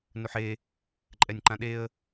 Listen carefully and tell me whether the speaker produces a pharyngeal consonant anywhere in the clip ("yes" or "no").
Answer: yes